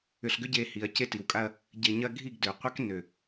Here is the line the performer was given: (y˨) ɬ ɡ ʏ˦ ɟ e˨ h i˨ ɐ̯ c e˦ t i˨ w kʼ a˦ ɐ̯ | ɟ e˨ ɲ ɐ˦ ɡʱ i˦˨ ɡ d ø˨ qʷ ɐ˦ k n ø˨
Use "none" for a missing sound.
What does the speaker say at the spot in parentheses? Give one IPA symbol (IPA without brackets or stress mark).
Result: ʏ˨